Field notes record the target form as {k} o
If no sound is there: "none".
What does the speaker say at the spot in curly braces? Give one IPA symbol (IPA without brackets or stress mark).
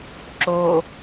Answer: ǁ